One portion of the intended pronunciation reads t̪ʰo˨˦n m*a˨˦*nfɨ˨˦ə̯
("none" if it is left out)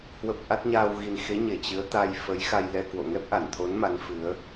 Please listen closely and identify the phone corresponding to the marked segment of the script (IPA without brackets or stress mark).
a˨˦